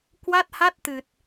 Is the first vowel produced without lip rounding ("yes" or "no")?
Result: yes